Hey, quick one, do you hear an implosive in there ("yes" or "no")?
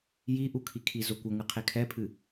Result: no